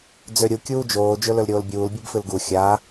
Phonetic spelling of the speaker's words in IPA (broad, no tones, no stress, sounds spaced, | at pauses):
d͡z ø ɾʲ u kʲ uː d͡ʒ oː d͡ʒ ɵ l ɵ l ɾʲ oː l bʲ uː l bʲ ɨ b f ɨ l ɡ u xʲ a